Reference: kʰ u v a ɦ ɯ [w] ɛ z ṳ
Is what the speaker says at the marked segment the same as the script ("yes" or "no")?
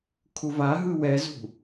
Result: yes